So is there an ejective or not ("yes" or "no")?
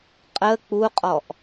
yes